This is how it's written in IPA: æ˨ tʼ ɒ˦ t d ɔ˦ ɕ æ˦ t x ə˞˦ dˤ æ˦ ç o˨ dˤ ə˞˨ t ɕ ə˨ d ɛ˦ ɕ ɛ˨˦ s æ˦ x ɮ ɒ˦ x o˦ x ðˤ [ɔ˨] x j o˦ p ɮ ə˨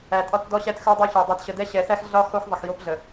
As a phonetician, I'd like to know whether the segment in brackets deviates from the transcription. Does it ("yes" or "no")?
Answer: yes